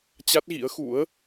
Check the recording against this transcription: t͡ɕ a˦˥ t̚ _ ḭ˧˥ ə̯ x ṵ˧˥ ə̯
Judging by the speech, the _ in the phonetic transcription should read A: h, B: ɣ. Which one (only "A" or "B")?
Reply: B